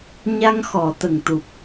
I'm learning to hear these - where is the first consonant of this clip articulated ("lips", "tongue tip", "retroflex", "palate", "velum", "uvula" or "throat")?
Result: palate